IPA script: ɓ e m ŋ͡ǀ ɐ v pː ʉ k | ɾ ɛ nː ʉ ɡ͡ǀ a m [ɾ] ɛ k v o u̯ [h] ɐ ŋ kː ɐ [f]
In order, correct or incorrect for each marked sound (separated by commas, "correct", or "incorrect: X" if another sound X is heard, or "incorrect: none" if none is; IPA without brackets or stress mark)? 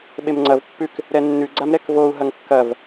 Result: correct, incorrect: ɦ, incorrect: v